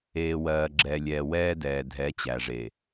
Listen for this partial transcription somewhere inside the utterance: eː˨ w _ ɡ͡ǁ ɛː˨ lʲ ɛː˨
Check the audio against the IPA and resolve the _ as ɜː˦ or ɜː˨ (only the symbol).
ɜː˨